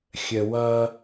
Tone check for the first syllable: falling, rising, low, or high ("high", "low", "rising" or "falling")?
low